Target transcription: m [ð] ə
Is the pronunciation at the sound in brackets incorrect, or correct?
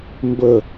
incorrect